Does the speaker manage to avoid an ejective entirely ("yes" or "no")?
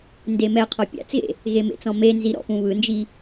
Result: yes